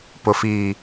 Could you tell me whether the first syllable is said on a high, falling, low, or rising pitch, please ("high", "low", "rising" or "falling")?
low